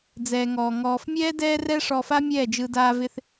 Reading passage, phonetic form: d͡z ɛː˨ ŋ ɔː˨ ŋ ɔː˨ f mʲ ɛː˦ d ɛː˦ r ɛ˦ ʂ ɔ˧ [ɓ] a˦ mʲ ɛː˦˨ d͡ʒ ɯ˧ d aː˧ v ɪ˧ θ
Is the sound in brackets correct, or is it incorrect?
incorrect